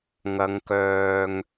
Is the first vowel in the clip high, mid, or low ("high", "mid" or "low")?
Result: low